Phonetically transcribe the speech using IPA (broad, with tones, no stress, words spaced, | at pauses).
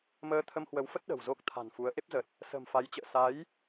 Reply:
məː˧t̪ʰə˧mhwə˨˦wfə˦˥t̚ ɗə̤˨˩wzo˦˥k̚t̪ʰa̤˨˩nfu˨˦ə̯ ʔe˦˥p̚zə˨˩t̚ | sə̤˨˩mfa˨˦jt͡ɕə̰ː˧˨ sa˨˦j